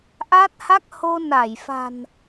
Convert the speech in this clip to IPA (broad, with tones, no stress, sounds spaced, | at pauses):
ʔ a˦˥ t̚ h a˦˥ k̚ h o˧ n a˧˩ j f a̤˨˩ n